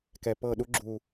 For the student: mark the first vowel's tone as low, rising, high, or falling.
low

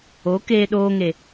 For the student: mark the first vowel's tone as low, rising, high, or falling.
rising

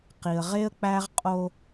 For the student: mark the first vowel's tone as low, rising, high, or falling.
low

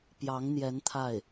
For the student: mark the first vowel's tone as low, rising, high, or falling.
rising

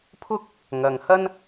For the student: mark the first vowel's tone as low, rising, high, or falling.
high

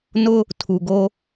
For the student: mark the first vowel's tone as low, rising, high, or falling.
high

